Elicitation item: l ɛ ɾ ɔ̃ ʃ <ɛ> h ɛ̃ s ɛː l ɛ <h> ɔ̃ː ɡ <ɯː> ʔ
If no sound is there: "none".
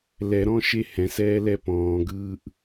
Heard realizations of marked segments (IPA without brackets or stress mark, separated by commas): e, p, ɯː